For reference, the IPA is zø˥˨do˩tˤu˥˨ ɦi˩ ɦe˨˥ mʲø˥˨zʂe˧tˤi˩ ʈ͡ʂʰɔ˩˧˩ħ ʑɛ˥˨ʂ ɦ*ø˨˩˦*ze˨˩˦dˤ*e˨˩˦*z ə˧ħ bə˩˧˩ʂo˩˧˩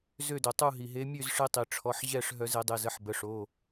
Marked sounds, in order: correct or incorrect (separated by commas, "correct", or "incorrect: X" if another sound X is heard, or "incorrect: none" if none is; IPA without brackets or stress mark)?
incorrect: œ˨˩˦, incorrect: e˩˧˩